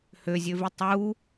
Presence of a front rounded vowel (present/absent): present